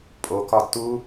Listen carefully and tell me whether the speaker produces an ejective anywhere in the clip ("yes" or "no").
yes